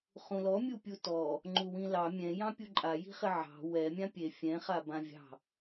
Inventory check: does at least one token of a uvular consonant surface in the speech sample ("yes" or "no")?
yes